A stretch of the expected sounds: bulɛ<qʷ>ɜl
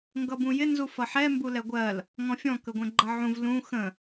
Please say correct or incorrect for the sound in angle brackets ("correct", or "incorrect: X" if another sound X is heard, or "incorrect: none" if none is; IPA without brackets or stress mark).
incorrect: ɡʷ